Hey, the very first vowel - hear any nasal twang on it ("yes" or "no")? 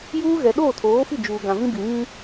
no